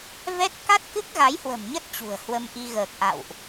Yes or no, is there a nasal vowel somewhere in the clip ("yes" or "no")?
no